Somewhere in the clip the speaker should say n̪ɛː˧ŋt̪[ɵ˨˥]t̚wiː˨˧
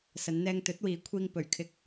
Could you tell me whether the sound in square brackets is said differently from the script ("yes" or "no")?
no